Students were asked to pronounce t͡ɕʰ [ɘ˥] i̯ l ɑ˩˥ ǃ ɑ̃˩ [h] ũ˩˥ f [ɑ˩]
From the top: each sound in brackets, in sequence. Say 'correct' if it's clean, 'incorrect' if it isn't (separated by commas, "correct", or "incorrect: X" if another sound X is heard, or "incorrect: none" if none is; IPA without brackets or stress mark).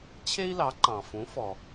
incorrect: e˥, incorrect: f, incorrect: ɔ˩